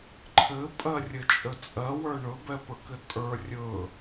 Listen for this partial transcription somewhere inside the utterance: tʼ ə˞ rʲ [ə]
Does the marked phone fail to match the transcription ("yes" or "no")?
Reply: yes